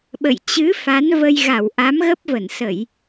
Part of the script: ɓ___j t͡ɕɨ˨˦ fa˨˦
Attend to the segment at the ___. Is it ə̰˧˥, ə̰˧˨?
ə̰˧˨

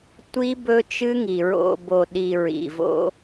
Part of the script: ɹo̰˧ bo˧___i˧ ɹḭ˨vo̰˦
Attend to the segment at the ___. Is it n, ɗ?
ɗ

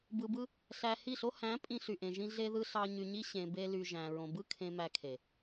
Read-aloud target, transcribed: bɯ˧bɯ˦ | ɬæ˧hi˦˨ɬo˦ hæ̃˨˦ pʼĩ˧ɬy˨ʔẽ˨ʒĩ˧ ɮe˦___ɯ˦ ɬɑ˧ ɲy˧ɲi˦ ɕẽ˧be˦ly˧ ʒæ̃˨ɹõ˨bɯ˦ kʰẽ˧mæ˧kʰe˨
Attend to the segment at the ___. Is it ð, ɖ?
ð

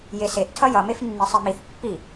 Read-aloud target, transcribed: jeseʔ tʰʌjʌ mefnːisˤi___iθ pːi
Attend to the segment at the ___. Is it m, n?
m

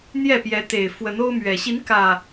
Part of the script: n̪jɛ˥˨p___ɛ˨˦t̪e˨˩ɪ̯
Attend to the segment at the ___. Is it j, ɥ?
j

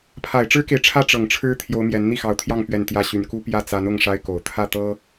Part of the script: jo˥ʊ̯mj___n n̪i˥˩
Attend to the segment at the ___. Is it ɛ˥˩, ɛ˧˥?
ɛ˧˥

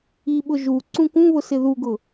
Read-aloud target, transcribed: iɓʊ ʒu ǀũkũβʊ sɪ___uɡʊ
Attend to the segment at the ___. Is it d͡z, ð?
ð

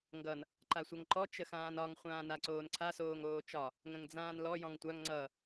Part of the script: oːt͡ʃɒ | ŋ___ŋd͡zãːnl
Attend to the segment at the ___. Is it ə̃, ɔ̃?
ə̃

